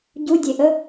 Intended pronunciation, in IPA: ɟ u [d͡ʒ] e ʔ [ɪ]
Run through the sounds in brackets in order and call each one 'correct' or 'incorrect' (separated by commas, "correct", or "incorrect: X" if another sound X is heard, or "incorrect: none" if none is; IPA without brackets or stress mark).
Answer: incorrect: dʲ, incorrect: ə